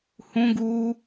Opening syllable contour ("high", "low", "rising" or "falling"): high